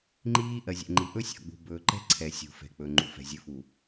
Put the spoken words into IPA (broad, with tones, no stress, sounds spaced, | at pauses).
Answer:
ŋ͡ǃ iː˦ ʔ ɜ˨ zʲ ɛ̰˨ ŋ͡ǃ i˨ ʔ ɵ˦ sʲ ɔ̰˨ ɡ͡b ṳ˨ b ɵː˨ ǃ ɛ̤˦ ǀʰ ɛ˨ sʲ ṳ˨ f ɛ̤˨ k͡p ɵ˨ ŋ͡ǃ ṵ˨ f ɛ̤˨ zʲ ɵ˨˦ f u˨